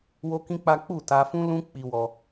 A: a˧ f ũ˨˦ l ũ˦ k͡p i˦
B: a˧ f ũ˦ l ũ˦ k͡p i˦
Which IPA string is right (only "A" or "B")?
B